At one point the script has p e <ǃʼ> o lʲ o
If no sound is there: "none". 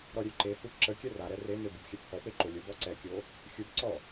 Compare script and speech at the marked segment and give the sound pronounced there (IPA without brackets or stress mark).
ǃ